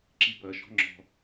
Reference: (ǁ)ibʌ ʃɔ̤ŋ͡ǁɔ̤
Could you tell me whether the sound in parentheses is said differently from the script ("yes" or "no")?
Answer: no